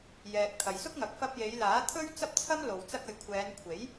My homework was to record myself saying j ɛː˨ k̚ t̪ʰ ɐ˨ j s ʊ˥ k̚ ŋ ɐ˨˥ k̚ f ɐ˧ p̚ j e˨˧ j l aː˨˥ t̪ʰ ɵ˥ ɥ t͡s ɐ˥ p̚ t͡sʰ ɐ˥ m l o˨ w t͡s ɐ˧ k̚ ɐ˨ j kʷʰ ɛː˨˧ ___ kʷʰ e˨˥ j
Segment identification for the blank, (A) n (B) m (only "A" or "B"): A